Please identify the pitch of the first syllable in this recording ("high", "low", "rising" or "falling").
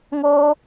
high